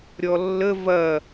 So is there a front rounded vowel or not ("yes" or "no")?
no